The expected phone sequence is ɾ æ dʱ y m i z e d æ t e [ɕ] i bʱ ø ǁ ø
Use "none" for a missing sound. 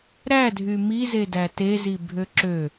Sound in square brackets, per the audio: z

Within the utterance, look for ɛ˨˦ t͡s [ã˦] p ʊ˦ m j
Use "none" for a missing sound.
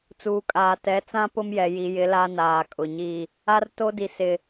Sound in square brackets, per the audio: ã˦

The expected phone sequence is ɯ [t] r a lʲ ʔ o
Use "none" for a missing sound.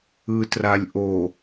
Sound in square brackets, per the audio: t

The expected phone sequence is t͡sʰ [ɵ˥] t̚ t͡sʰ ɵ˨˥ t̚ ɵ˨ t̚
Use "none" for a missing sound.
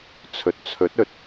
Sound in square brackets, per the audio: ɵ˨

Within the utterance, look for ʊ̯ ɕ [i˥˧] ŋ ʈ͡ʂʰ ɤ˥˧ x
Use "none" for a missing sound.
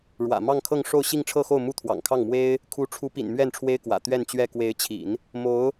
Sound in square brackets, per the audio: i˥˧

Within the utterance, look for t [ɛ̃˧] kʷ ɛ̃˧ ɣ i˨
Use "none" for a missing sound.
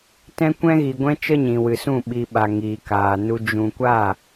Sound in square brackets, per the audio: ɛ̃˧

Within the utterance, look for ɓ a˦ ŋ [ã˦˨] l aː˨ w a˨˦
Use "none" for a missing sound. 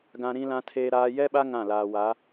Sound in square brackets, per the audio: ã˦˨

